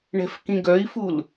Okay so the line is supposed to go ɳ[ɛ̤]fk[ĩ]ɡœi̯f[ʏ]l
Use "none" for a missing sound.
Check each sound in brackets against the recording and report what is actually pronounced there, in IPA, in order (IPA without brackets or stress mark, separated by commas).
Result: ɛ̤, ĩ, u